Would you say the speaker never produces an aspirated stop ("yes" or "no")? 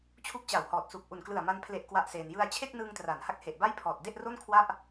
no